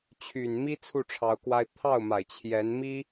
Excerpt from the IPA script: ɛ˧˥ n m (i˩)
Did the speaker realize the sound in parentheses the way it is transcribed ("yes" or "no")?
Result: no